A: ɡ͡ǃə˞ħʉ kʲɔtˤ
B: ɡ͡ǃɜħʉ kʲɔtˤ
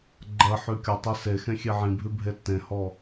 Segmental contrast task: B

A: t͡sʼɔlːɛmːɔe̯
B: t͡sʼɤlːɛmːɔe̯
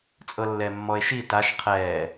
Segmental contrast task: B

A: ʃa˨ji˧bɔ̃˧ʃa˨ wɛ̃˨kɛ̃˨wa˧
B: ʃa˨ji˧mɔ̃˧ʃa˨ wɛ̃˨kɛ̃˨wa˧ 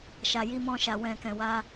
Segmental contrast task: B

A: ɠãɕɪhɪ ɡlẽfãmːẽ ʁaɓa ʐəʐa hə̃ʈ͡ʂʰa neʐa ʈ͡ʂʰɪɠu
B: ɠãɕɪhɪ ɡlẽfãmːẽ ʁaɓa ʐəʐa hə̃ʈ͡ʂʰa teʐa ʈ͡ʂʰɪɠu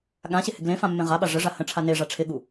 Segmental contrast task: A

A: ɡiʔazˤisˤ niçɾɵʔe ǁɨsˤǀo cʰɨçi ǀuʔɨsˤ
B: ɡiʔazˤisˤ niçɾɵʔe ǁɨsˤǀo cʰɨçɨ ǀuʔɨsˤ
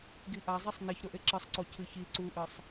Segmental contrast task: A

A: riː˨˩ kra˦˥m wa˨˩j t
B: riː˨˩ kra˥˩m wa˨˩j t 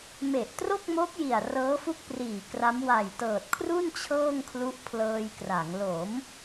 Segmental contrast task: A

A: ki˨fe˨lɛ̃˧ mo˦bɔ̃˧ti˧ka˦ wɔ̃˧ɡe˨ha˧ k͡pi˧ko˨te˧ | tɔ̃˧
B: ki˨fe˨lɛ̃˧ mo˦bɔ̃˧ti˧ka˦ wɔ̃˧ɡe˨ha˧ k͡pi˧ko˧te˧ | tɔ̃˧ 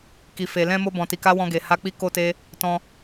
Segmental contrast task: B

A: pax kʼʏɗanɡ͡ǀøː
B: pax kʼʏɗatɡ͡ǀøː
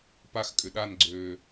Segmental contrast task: A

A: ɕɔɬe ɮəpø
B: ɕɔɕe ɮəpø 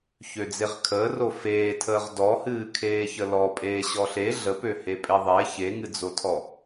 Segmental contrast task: A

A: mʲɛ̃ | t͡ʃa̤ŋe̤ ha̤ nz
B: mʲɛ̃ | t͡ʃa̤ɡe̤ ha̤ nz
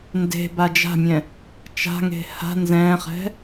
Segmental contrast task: A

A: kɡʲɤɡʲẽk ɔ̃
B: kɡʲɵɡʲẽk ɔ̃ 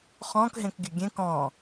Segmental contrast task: B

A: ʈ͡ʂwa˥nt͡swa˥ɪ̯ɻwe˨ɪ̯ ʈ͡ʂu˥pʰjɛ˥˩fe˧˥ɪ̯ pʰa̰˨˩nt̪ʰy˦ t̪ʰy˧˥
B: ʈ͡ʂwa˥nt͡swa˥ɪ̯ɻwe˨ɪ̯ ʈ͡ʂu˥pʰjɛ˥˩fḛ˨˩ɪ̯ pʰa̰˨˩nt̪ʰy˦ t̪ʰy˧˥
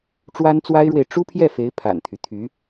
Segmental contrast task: A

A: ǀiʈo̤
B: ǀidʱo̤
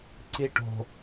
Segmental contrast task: A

